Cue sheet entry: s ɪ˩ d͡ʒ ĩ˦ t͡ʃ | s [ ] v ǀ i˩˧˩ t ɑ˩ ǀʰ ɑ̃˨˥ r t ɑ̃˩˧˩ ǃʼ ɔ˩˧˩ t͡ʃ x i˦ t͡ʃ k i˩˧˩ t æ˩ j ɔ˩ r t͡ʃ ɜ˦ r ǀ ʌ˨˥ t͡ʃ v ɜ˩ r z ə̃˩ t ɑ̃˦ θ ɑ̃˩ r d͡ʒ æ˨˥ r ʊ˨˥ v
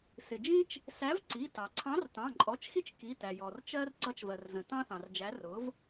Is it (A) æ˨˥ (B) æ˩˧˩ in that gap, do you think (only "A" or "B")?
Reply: A